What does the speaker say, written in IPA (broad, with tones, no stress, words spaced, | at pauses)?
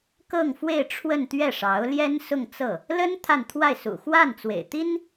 kɤ˥˧ŋfwe˥˧ɪ̯ ʈ͡ʂʰwə˥˧nt̪ɥɛ˥˩ʂɑ˧˥ʊ̯ ljɛ˥nsʊ˥˧ŋt͡sɤ˥˩ | lə˥n t̪ʰa˥˧nt̪ʰwa˥˩ɪ̯ sṵ˨˩xwa˥˩n t͡swḛ˨˩ɪ̯ t̪i˥n